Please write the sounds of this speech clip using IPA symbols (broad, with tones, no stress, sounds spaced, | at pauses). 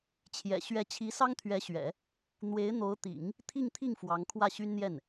t͡ɕʰ j ɛ̰˨˩ ɕ ɥ ɛ˧˥ t͡ɕʰ i˧˥ s ɑ˥ ŋ t̪ʰ ɥ ɛ˧˥ ɕ ɥ ɛ̰˨˩˦ | n̪ w e˧˥ ɪ̯ n̪ o˧˥ ʊ̯ t̪ ḭ˨˩˦ ŋ | t̪ʰ i˥˧ ŋ t̪ʰ i˥˩ ŋ f w ɑ˧˥ ŋ kʰ w ä˥˩ ɕ y˥ n n̪ j ɛ˥˩ n